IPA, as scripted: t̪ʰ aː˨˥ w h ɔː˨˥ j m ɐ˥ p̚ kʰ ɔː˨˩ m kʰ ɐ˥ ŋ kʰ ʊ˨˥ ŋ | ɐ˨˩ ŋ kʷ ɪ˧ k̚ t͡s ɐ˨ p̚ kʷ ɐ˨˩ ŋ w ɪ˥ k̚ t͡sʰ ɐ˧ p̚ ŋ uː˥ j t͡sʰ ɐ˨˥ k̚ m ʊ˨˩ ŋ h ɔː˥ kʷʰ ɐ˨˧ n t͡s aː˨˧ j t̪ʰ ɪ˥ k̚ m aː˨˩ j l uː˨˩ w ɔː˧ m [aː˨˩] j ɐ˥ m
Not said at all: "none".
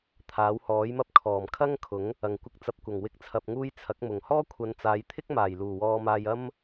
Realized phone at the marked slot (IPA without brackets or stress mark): aː˧